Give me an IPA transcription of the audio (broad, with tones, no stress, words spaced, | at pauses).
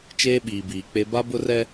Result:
t͡ʃeː˦ɓiː˨biː˨k͡pe˦ ba˦bʊ˦rɛ˦